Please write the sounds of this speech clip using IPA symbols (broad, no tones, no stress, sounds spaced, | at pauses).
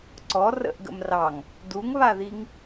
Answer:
ǀ ɔ r ə̰ ʔ ɡ ə̰ m r ɑ ŋ | d u ŋ β a ð i ŋ